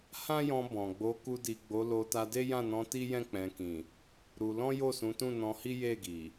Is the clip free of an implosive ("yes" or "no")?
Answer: yes